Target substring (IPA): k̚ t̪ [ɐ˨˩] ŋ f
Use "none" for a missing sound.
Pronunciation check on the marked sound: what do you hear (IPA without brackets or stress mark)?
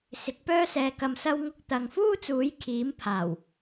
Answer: ɐ˨